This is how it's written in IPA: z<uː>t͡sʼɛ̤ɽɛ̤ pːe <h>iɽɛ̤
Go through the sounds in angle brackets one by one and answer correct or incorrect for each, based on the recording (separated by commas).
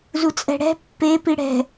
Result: incorrect, incorrect